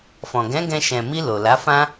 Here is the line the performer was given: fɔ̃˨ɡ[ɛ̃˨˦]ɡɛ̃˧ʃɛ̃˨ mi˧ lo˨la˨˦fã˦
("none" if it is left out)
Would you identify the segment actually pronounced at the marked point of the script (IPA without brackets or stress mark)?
ɛ̃˨˦